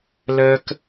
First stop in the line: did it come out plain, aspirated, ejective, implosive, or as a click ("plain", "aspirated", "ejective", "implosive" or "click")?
plain